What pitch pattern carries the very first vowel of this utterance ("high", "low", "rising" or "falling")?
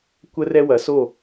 high